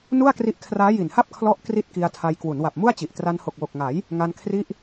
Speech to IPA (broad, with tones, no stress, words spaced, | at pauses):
nu˥˩a̯kri˦˥ʔ kʰraː˦˥ji˨˩nha˥˩p̚ kʰlɔ˦˥ʔ kri˥˩t̚ki˧a̯tʰa˧j kwu˩˦nwa˨˩p̚mu˥˩a̯t͡ɕi˨˩ʔ tra˧nho˨˩k̚wo˨˩k̚ŋa˩˦j | ŋa˧nkʰri˦˥ʔ